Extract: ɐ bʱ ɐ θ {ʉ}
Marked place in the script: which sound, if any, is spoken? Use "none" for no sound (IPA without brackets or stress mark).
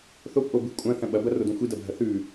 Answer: ʉ